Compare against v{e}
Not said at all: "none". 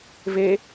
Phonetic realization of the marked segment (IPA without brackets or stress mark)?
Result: e